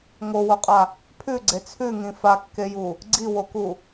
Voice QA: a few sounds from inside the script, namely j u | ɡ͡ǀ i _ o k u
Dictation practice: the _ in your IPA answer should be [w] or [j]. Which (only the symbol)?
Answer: w